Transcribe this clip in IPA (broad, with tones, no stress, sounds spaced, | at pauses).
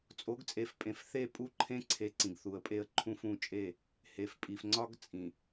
t͡sʼ o˨˦ ɡ t͡sʼ e˨ f pʼ ẽ˨ f θ e˦˨ pʼ u˦ ǃʰ ẽ˦ ǀʰ e˨˦ ǀ ĩ˨ ɡ θ u˨ ə̯ pʼ e˦ ə̯ ǃʰ ũ˦ f ũ˦˨ t͡ʃʼ e˦˨ | h e˨ f pʼ i˨ f ŋ͡ǀ ɒ˦ ɡ t͡sʼ ĩ˨